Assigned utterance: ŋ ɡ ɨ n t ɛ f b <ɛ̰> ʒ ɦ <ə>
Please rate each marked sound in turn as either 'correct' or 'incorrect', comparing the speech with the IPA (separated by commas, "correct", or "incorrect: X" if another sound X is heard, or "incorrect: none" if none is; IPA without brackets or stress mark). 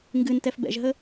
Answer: correct, correct